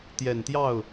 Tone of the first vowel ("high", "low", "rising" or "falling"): low